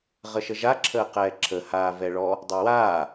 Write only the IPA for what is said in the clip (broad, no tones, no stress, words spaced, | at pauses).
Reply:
ʁəʃəʒa ǁʰəːqɛːǁʰə haːvɛɭɔ | dˤə˞waː